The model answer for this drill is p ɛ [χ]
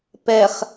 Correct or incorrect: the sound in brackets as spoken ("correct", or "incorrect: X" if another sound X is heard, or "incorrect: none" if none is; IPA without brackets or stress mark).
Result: correct